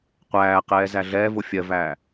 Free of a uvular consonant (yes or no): no